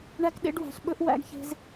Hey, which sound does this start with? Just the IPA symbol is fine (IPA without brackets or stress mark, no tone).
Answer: ɳ